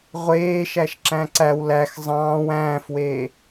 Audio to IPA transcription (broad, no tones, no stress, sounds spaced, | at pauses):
ʁʷ eː ʃ æ ʃ ǁ æ̃ ǀ æ w l æ x zˤ ɑ̃ː w æ̃ː f w eː